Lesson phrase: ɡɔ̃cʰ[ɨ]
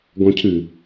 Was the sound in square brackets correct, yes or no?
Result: yes